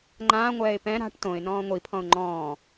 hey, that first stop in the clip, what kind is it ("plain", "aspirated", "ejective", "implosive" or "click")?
click